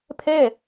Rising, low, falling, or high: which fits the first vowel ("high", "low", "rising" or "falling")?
falling